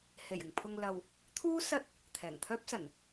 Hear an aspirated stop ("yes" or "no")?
yes